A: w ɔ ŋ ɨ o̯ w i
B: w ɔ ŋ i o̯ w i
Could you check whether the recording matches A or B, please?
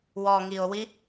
B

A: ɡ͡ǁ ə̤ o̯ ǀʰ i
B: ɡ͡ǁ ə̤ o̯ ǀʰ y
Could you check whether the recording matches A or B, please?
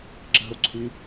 B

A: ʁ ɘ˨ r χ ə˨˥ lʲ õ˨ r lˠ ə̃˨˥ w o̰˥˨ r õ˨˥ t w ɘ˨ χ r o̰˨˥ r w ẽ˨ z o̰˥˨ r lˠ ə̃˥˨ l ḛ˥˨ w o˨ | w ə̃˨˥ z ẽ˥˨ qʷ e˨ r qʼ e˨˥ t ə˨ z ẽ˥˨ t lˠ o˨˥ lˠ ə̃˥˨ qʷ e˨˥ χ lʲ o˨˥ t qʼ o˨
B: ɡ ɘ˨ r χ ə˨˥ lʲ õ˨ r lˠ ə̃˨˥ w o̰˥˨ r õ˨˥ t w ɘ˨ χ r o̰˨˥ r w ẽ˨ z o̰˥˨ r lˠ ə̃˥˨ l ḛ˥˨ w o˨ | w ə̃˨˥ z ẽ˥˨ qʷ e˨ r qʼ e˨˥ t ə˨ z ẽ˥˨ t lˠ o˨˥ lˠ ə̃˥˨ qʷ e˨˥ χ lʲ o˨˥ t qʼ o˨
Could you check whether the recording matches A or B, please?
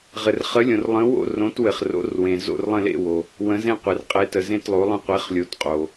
A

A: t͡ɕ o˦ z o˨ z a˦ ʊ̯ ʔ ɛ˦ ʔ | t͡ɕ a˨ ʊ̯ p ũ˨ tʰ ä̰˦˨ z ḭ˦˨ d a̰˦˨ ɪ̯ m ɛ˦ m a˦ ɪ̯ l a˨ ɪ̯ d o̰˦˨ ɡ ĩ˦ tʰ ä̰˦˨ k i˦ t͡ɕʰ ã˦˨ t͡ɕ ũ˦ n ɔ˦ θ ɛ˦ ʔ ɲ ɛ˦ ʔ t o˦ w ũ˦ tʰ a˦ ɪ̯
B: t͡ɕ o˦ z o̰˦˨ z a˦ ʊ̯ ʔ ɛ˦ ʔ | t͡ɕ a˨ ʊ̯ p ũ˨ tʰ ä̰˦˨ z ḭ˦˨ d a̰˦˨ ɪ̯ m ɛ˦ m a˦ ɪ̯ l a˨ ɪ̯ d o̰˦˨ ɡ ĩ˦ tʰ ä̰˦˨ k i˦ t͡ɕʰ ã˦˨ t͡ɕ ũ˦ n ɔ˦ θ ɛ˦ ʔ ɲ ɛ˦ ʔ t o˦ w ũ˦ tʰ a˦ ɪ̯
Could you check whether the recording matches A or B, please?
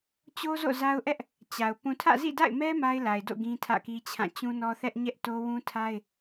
B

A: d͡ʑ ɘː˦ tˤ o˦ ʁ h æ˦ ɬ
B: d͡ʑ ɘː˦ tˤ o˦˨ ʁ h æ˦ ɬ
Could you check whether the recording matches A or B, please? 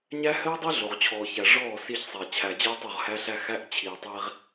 B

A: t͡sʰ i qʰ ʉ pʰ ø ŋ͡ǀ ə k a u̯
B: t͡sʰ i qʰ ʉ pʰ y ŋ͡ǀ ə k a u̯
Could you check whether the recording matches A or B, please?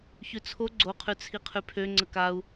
A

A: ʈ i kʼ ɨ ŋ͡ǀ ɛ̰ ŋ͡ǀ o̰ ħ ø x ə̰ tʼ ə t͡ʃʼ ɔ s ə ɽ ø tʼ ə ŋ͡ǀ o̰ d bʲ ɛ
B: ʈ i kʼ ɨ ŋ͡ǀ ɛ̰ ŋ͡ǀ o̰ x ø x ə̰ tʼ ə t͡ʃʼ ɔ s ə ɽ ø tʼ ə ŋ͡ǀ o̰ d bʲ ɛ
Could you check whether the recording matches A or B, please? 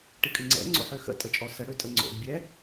A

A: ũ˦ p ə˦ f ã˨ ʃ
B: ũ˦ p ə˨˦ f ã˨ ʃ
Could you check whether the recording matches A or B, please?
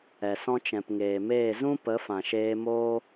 B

